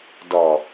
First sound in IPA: d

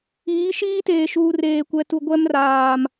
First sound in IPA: iː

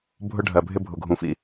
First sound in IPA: bʱ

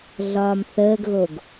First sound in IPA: ɮ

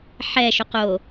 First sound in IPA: ħ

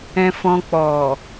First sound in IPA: ɛ̃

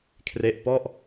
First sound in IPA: kʰ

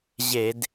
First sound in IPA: ʑ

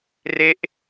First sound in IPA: r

